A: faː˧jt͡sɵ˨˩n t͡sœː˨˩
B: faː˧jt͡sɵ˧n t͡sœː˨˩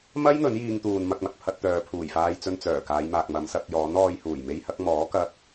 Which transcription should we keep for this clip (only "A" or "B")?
B